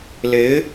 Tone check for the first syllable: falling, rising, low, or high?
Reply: rising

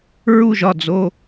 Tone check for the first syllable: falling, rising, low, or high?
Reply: falling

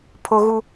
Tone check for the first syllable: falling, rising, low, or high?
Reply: high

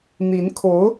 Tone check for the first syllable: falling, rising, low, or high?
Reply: rising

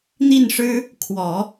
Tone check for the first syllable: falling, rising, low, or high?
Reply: falling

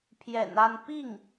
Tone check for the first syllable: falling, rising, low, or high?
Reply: low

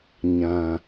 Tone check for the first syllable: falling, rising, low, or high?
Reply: low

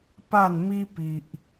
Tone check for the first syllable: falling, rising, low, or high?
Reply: falling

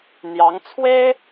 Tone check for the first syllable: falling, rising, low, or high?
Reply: rising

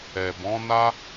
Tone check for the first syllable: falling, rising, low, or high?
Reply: low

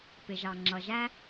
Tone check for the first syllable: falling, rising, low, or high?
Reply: low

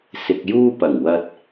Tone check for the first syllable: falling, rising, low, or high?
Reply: low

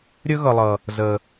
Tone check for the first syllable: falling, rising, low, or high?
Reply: high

